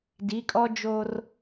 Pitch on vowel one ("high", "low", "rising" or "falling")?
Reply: rising